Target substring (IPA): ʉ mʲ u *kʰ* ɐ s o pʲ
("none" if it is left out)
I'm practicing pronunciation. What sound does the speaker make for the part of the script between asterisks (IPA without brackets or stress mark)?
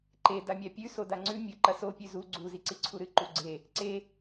ǃ